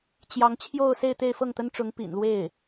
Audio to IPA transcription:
t͡ɕ j ɑ˧˥ ŋ t͡ɕʰ j o˥˧ ʊ̯ s e˥˧ ɪ̯ t̪ e˥˧ ɪ̯ f ɤ˥˩ ŋ t̪ ə˥ n ʈ͡ʂ ʊ˧˥ ŋ p ḭ˨˩ n l w e˥˩ ɪ̯

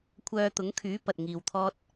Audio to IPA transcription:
kʷʰ œː˧ t̪ ʊ˨˥ ŋ kʰ yː˨˥ p ɐ˨ t̚ ŋ iː˧ w t̪ʰ ɔː˥ t̚

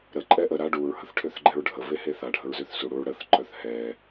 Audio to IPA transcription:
ɾ ə ǃʼ ɛ ʔ ə ɾ a ɖ u ɹ h ə θ ʈʰ ø θ ɡ͡ǃ ɛ ɹ ɖʱ ə v e h e θ a ɖʱ ə ɹ z ø θ s u ɽ u ɹ ɽ ə θ ǃ œ θ h ɛ

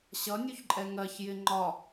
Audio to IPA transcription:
ɕ ʌ nʲ u ç ǃʼ ɛ ŋ ɜ ç j ɪ ŋ͡ǃ ɒ

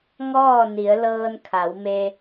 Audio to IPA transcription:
ŋ ɔː˥˨ n i˩˧ ə̯ l ɤː˧ n kʰ a˩˧ w m e˧

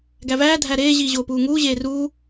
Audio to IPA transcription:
ɡ æ v æː dʱ æ ɾ eː ʑ iː ʑ oː p uː ŋ uː ʑ eː r uː

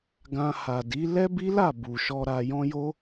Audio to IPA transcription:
ɡ ã˧ h a˨ d i˨˦ l ɛ˦ b i˦ l a˦˨ b u˨ ʃ ɔ˧ ɾ a˧ j ɔ̃˦ j o˦

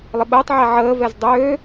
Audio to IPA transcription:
lˠ ɪ ɓ əː tˤ ʕ ɛ ʕ əː v ɛ z dˤ øː

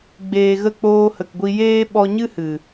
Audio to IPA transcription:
ɡ͡b eː˨ ɣ ə˦˨ k͡p oː˧ h ə˨ k ɡʷ i˧ j eː˦ ɓ ɔ˧ ɲ ɨ˦ h ɨ˨

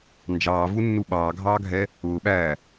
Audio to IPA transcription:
n d͡ʒ ɑː v u nː u ɓ ɑː ɡʱ ɑː ɡʱ ɛ | ʊː ɓ æː

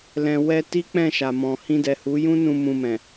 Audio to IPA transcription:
l ɛ̃˨ w ɛ˧ t i˦ k͡p ɛ̃˦˨ ʃ a˨ m ɔ̃˨ h ĩ˧ d ɛ˨ h u˨˦ j ũ˦ n ũ˧ m ũ˧ m ɛ̃˨

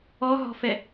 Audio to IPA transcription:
ɔ ɦ ɔ̤ f ɛ

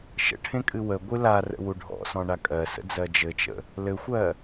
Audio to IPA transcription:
ʃ ə̰ ʈʰ ẽ kʼ ɨ w ə ɡʷ ɨ l a r ə̰ w u ɖʱ ɔ̰ s ɔ̃ ɳ a kʼ ɜ s ə̰ d͡z ɜ d͡ʒ ɘ t͡ʃ ə̰ | l ɘ xʷ ɜ

